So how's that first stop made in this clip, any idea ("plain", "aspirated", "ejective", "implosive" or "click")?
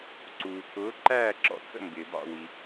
click